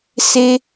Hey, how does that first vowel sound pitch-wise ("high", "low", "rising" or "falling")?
high